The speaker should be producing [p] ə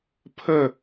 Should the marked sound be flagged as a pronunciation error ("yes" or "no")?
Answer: yes